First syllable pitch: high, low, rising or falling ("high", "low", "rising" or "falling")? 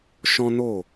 high